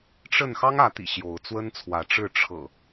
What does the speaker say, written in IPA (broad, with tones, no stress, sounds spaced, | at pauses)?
ʈ͡ʂ ə˥˨ n x ɑ˦ ŋ ä˨˦ t̪ ḭ˨˩ ɕ j o˨˦ ʊ̯ t͡s w ə˦ n t͡sʰ w ä˨˦ ʈ͡ʂ ɻ̩˥˨ ʈ͡ʂʰ ɤ̰˨˩